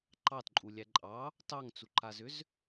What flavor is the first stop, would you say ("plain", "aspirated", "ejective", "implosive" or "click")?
click